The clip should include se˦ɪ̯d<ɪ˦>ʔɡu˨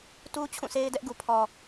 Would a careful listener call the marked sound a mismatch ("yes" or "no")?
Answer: yes